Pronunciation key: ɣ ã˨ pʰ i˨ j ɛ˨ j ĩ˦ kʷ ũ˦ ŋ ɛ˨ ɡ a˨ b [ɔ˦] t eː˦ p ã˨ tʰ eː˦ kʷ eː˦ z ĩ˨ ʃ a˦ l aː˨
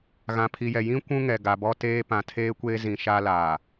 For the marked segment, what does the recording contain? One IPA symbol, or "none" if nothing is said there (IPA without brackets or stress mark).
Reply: ɔ˦